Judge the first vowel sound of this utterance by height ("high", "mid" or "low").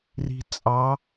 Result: high